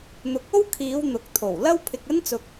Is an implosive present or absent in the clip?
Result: absent